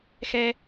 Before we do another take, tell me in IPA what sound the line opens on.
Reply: x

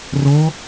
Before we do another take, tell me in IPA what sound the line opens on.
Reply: r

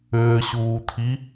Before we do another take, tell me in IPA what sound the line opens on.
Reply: ʏː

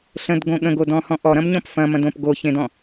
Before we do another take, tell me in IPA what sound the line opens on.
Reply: ɬ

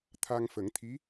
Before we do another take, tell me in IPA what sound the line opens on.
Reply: t̪ʰ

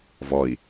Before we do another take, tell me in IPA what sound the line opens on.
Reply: v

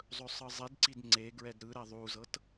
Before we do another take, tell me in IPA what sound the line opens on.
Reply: zˤ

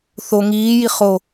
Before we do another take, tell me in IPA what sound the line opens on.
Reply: θ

